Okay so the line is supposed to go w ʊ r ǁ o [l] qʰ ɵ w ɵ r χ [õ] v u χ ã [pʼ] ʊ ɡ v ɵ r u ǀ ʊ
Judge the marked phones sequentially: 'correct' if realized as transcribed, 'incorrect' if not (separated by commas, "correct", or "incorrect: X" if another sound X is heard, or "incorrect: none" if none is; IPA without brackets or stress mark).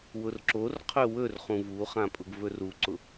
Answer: incorrect: r, incorrect: ũ, correct